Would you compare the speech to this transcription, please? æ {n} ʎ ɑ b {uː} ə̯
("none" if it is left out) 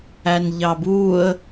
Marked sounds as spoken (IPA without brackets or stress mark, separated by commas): n, uː